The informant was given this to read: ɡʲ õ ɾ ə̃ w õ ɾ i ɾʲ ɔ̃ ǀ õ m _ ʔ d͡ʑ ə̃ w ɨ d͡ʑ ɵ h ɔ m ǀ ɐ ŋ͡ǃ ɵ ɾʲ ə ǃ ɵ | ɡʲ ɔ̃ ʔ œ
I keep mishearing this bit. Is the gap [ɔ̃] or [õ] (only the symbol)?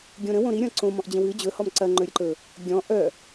ɔ̃